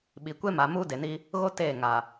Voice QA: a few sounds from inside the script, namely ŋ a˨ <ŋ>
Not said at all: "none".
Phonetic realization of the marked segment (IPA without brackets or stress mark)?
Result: none